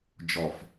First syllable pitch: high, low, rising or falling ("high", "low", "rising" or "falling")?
low